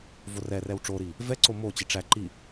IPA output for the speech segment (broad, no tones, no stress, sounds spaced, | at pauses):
v o r ɛ r ɛ w ʈ͡ʂ o ɾ i | v ɛ ǀ o m o t͡ɕ i ʈ͡ʂ æ ǃ i